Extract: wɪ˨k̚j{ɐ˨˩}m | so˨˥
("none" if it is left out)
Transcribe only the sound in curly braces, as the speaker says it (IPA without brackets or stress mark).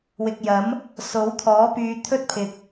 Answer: ɐ˨˥